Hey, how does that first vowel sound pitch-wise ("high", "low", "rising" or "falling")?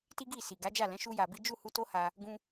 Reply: high